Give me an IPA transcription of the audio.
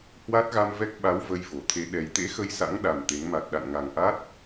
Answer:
h w a˦˥ t̚ ɣ a˧ m v ɛ˦˥ k̚ ɓ a˨˦ w v ə˧ j v o˧˩ t̪ʰ e˧ ɗ ɛ˨˩ j t̪ ḛ˧˥ x ə˧ j s a̰˧˥ ŋ ɗ a˨˩ m t̪ e˨˦ ŋ m a˨˩ t̚ ɗ a̰˧˨ n ŋ a˨˩ ŋ ʔ a˦˥ t̚

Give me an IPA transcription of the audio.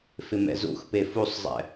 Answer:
f ɪ m ɛ̰ z ṵ x p e f u sˤ zˤ ɛ̰

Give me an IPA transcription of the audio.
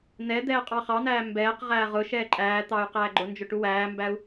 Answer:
n ɛ d̪ ɛː qʼ ɑ χ ɑ n̪ æː m b ɛː q ʁ æː ʁ ʊ ʃ ɛː ǃʼ æː t̪ ɑ y̯ q æː ɡ͡ǃ ʊ n d͡ʒ ʊ ʈ u w æː m b æ u̯

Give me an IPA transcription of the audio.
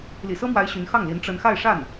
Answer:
l ḭ˨˩ s ɤ˥ m w a˧˥ ɪ̯ ɕ y˧˥ n x ɑ˥˩ ŋ l i˧˥ n ʈ͡ʂ ə˥ n x a˥˧ ɪ̯ ʂ a˥˩ n

